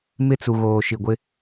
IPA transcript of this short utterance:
m ɪ˦ t͡s u˨ ɣ oː˨ ʃ i˨ ɡʷ ɪ˦

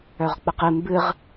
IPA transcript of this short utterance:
œ ʁ k͡p ə q ɨ m b ɨ ʁ

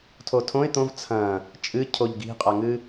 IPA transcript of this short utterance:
tʰ o tʰ õ ɪ̯ t̪ õ v t͡sʰ ɐ̃ | t͡ʃʼ ɨ cʰ o ʎ ɡ i̤ qʼ a ŋ ɨ

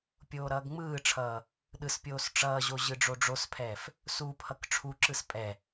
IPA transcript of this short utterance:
pʲ oː ɾ ʌː ɡ ŋ͡m ɯː ʈ͡ʂʰ ʌː | ɗ ɯ s pʲ oː s ʈ͡ʂ ʌː ʑ o ʑ ɯ ɖ͡ʐ o ɖ͡ʐ o s pʰ ɛː f | s u pʰ ʌ k ʈ͡ʂʰ u ǁ ɯ s pʼ ɛ

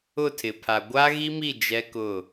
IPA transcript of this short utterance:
ʊ˦˨ tʰ ɪ˨ pʰ a˨ ɡʷ a˦ ɣ i˦ m i˦˨ d͡ʒ ɛ˦ k ʊ˦˨

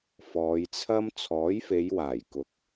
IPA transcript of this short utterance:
f ɔː˨˧ j t͡sʰ ɐ˥ m t͡sʰ ɔː˨˥ j f e˨˧ j w aː˨˩ j k ʊ˨˥ k̚

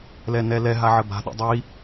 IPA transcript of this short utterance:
l ɛ n ɛ l ɛ ɦ a ʕ ə b a̤ ɗ ḭ dˤ i

